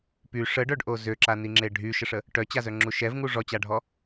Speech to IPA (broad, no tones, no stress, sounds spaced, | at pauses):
p y ʂ ə ɖ œ ɖ ʔ o z ø ǁ a n i ŋ͡ǁ e ɖʱ y ʃ ə ʂ ə | ʈ œ t͡ɕ a z œ ŋ͡ǁ u ʃ ɛ v ŋ u ʐ ɔ t͡ɕ a ɖʱ ɔ